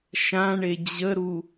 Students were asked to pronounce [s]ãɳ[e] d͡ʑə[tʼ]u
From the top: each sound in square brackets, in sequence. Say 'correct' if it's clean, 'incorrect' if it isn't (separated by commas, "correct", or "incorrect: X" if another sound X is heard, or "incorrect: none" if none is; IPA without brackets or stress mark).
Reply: incorrect: ʃ, correct, incorrect: ɾ